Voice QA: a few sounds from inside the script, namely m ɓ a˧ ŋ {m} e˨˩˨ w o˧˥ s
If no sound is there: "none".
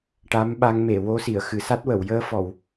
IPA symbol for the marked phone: m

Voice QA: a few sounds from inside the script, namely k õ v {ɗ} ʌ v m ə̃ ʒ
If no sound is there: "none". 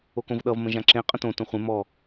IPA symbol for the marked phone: ɗ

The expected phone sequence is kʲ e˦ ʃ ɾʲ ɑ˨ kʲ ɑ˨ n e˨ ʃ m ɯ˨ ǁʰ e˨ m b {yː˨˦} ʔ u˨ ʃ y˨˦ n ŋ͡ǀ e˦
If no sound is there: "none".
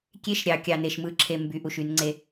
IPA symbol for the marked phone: y˨˦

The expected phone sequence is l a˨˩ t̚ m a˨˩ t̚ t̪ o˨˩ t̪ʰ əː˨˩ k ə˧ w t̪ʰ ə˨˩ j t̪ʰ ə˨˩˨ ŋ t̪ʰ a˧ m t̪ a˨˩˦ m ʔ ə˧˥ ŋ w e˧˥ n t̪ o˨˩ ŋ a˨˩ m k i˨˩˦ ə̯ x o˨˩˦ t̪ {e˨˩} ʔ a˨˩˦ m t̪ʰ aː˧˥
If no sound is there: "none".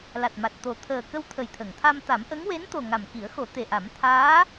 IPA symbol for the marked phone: e˨˩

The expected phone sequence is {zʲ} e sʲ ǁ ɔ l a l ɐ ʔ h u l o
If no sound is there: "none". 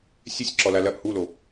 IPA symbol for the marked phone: sʲ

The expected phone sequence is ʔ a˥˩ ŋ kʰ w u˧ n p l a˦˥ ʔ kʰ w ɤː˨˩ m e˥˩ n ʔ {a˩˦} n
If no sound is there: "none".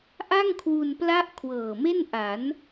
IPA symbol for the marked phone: a˩˦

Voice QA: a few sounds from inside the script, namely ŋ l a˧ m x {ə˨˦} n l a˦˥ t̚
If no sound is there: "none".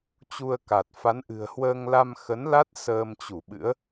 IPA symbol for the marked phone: ə˨˦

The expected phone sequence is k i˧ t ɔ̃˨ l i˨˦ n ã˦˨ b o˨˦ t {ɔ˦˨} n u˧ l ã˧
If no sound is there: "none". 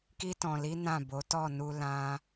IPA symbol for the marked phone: ɔ˦˨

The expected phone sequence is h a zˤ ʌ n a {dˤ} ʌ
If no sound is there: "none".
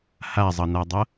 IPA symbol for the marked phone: dˤ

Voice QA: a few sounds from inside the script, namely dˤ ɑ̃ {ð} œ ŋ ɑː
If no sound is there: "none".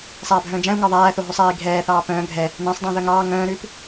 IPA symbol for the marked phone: ð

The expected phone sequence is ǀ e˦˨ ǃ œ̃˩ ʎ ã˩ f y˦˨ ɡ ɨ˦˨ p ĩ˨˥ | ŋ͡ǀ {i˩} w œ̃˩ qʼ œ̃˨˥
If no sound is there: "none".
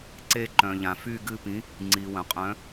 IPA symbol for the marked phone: i˩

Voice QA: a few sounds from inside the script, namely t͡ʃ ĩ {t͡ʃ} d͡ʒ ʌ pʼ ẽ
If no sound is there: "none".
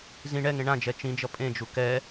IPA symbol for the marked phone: none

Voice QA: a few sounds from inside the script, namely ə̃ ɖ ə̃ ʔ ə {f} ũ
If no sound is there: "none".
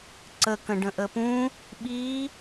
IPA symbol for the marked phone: p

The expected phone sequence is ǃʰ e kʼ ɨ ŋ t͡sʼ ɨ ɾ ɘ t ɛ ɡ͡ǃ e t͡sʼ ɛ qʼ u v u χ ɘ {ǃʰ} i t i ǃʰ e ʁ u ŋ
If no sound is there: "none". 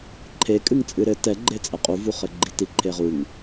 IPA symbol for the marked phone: ɡ͡ǃ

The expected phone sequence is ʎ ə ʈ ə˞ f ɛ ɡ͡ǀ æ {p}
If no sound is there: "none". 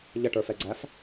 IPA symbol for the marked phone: f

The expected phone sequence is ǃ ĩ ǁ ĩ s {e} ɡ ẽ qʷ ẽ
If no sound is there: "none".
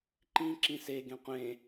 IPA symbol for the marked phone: e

